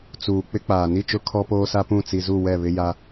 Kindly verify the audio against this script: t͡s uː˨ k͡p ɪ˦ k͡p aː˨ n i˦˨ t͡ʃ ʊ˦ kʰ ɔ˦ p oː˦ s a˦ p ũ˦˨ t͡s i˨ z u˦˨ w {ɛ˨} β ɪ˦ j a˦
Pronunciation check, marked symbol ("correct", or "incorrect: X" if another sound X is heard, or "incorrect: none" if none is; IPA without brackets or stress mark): incorrect: ɛ˦˨